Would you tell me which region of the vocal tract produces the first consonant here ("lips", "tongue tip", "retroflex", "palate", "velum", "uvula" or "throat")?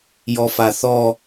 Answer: palate